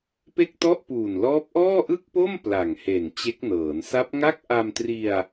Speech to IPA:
p e˥˩ k̚ t ɔ˥˩ ʔ p uː˨˩ n l ɔː˦˥ p̚ ʔ ɔː˥˩ ʔ ɯ˥˩ k̚ p o˥˩ m p l a˨˩ ŋ h e˨˩ n t͡ɕ e˦˥ k̚ n ɤː˩˦ n s a˦˥ p̚ ŋ a˥˩ k̚ ʔ a˧ m t r i˧ a̯

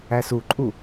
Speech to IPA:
æ s u ǃʼ u

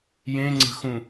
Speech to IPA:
j ẽ ŋ͡ǀ ə̤ x ũ

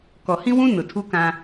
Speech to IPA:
k ɔ˨ h ĩ˦ w ũ˦ n ʊ˨ tʰ u˦ k ã˦

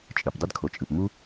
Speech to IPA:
t͡ʃʼ ɯ˩ p dˤ ɯ˥ d kʰ o˩ t͡ʃʼ ɯ˩ p m u˥

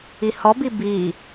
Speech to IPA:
i h ɔ b i b i

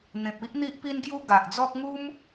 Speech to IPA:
n̪ ẽ˨ p̚ i˦ ʔ n̪ i˦ ʔ p i˦ n ɡ j u˦ ɡ a˨ ʔ d͡z ɔ˦ k̚ ŋ u˦ m

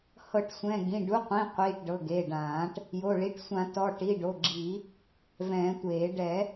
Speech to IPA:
h ɤ˨˩˦ ʈ sʷ ɛ̃˩˧˩ ɡ ĩ˩˧˩ ɖ u˩˧˩ qʷ ĩ˩˧˩ qʷ iː˩˧˩ ʈ ɖ ɤ˩˧˩ ɡ e˩˧˩ ɖ ãː˨˩˦ ʈ | j o˩˧˩ ɭ i˩˧˩ ʈ sʷ ã˨˩˦ t ɔ˩˧˩ ʈ i˩˧˩ ɖ o˩˧˩ ɡ͡ǁ i˨˩˦ | v ɛ̃ː˨˩˦ tʷ eː˨˩˦ ɖ ɛ˨˩˦

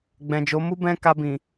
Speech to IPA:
ɡ͡b ɛ̃˨ d͡ʒ o˨˦ m u˦ b ɛ̃˦ k a˧ b ĩ˨

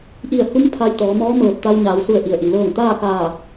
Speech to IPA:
ʔ i˧˩ ə̯ h u˧˥ m pʰ a˧ j t̪ ɔː˩˧ m ɔː˧˥ m ɤː˧˩ p̚ t̪ a˧ w ɲ aː˩˧ w s u˧˩ ə̯ ʔ i˩ ə̯ ʔ i˩ l ɤː˧˩ ŋ t̪ aː˥˨ k aː˧˩

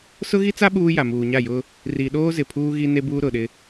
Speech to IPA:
s ʊ˦ ɣ i˦ t͡s a˦ ɓ uː˦ j a˨ m uː˨ ɲ a˦˨ j ʊ˦ | r i˨ ɗ oː˦ z ɪ˨ pʰ uː˦ ɣ i˦ n e˦ b uː˦ ɾ ʊ˨ ɗ ɪ˦

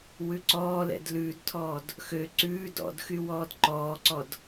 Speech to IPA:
w ʉ ǀ ɔː l ɛ̰ d l ʉː d tʰ ɔː d | x ø ǀ ʉː d ɔ̰ d x y w ɔː d ǃ ɔː ǀ ɔ d

